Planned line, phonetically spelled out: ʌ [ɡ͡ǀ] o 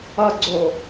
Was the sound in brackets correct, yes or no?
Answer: yes